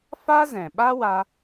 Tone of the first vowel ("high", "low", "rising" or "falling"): high